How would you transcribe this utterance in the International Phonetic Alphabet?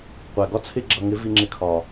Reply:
qʷ æ˨ ɡ ɒ˦ t͡sʰ ɪ˦ ɡ͡ǁ ʌ˧ ŋ ɪ˨˦ v i˧ ŋ͡ǁ ɪ˧ kʰ ɒ˨

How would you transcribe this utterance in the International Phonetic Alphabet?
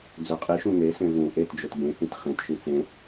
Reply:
d͡z ø qʼ i ʃ ũ ŋ e s ẽ v ũ ʔ e t d͡ʒ ɵ t b ẽ h ĩ t χ ẽ t ʃ ĩ t͡s ẽ

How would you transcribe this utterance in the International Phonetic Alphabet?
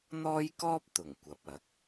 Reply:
n̪ ɔː˥ j k ɔː˥ p̚ t̪ ʊ˨˩ ŋ kʷ ɐ˨˥ p̚ ɐ˨˥ k̚

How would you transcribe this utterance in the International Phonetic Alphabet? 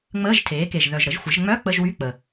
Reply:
ŋ͡m əː˧˥˧ ʒ tʰ eː˩˥ k e˨˩ ʒ ð œ˨˩ ʒ ɾ ə˩˥ ʒ xʷ ə˩˥ ʒ ŋ͡m œ˧˥˧ k͡p ə˧˥˧ ʒ w y˧˥˧ k͡p ə˨˩

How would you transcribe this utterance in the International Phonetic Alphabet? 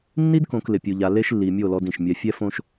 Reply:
nː i˦ d k õ˨ k l ɪ˨ pʲ u˨ ʎ a˨ l e˦ ʃ lː i˨ mʲ o˦˨ l ɔ˦ d ĩ˨ ʃ mʲ ɛ˦ fʲ ɛ˦ f õ˦ ʃ

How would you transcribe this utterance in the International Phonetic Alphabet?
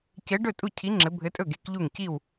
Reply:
c ɘ˧˥ ɖ ɵ˥˨ tʼ u˥˨ cʰ i˧˥ ŋ͡ǁ ɘ˧˥ bʱ ɘ˧˥ tʼ ɵ˥˨ ɡ e˧˥ k ʎ u˥˨ ŋ c i˥˨ w

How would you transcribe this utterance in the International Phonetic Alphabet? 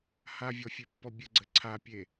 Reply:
h a vʲ ɔ fʲ e pː ɔ bʲ ə ɡ͡ǀ ə ǀʰ a pʲ e

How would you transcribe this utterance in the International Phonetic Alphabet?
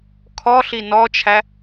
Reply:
kʰ ɔ ɬ i n ɔ t͡ʃʰ æ

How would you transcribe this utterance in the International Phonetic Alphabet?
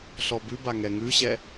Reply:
ɬ ɔ b ʉ b a ŋ ɛ ŋ ʉ ɕ ɛ

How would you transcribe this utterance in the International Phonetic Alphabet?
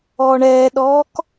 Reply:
ɔː ɳ ɛː ɗ ɔː k

